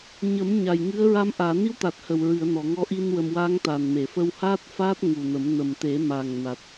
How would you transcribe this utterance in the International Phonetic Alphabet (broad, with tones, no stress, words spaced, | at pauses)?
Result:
ɲə˨˩˦mɲa˨˩j ŋɨ˧˥ə̯ɹa˧˥m ʔaː˨˩˨ni˧˥wt̪a˨˩t̚ hə˨˩w ɹɨ˨˩˨ə̯ nɔ˨˩˨ŋɔ˧˥ʔi˧n wə˧m wa˧˥ŋt̪a˨˩nme˨˩˨fə˧w haː˦˥t̚faː˦˥t̚ ŋu˨˩nə˨˩˦m nə˨˩mt̪e˨˩˦ma˨˩ŋna˨˩t̚